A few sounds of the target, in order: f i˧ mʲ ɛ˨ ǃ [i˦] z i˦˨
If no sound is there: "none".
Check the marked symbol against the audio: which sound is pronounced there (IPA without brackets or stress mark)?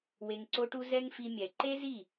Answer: e˦